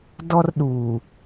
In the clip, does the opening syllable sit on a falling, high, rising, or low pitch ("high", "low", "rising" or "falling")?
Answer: high